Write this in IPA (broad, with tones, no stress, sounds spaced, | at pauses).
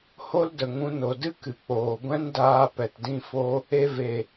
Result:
h o˦ l d ə˨ ŋ ũ˧ n o˨ d ɨ˦ k ɨ˨ k͡p oː˨ ɡʷ ɛ̃˦ n d aː˧ p ɛ˨ t d ĩ˧ f o˧ | e˧ v e˨